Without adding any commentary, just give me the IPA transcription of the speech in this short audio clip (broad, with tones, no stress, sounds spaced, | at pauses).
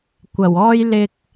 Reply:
kʷ ɐ˨˩ w ɔː˥ j l ɪ˧ k̚